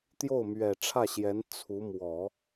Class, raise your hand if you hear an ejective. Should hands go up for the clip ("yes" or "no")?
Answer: no